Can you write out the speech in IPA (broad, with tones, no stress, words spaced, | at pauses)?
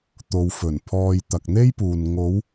t̪o˨wfɵ˨˩npʰɔː˨j t̪ɐ˨k̚n̪e˥jpuː˨n ŋo˨˧w